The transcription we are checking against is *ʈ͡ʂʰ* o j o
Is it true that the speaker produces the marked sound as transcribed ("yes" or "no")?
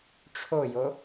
yes